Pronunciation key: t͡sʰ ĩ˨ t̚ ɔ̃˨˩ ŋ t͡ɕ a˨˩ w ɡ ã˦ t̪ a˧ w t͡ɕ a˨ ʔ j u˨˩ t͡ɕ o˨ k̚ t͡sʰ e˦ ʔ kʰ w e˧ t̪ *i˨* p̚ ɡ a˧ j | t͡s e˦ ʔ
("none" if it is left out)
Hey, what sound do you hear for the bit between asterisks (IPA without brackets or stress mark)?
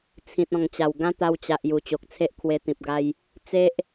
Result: ĩ˨